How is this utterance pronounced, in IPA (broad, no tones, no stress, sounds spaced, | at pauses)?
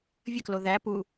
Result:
vʲ ə k l o ð æ p u